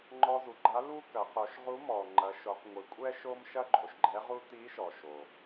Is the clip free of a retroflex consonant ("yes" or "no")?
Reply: yes